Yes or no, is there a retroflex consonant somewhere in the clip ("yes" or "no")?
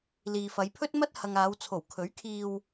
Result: no